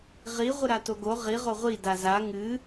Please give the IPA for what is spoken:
ʁi ʁʷɨɾatoɡo ʁi ʁoʁʷi daza ŋɨ

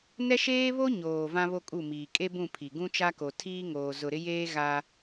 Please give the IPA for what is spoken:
nɛ˦ʃeː˦βo˦ ɲoː˨ vã˦βo˦kʼu˦˨miː˨ kʼe˦bũ˦˨pʰi˨ ɡũ˦t͡ʃa˦ko˨ tʰiː˦ŋoː˨ zʊ˨ɾɪ˦jeː˦ ɣa˦

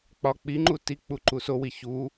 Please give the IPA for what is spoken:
k͡pɒ k͡piŋ͡ǃu tik͡pu ǃusowi çu

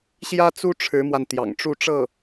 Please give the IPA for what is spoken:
ɕjä˥t͡su˥ ʈ͡ʂʰɻ̩˧˥mwa˧nt̪jɑ̰˨˩ŋ ʈ͡ʂu˥˧ʈ͡ʂɤ˥˩

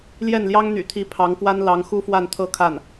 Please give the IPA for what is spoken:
ljɛ˥˩nljɑ˥ŋn̪y̰˨˩t̪ʰi˧˥ pʰɑ˧˥ŋkwa˥n lɑ˧˥ŋ xu˥fwa˥˧nt̪ʰɤ˥˧ kʰa˥˩n

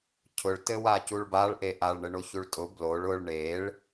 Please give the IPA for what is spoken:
cʰʊɭtɘwa cuɭbaɭʔe ʔaɭɳɘ ɳoçuɭtʼʊ bloɭ ʊɭ ɳeɭ

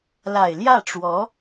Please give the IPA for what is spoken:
la˨˩ɪ̯ljä˥˩ʈ͡ʂwɔ˧˥

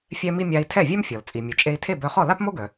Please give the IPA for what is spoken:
fʲɛ˧mi˧ mʲa˧i̯tʰɛ˥˩ vʲœ˥mfʲɔ˩l t͡sʼi˩mʲu˩ t͡ʃʼe˧i̯tʰe˥˩bœ˧χɔ˥˩ la˥pmo˥ɡœ˩

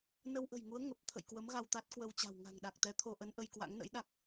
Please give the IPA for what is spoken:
nə˧wʔə̤˨˩jŋu˨˦ə̯ ŋə˨˩p̚ t̪ʰə̰˧˨jkwə˨˦m ɣa˧wt̪a˦˥t̚kwə˧wt͡ɕa̤˨˩w ŋa̤˨˩ŋɗa˨˩k̚t̪ɛ˨˦ t̪ʰo˧ʔə˨˦n ʔə˧jkwa̰˧˥ŋnə̰˧˥jɗa˦˥k̚

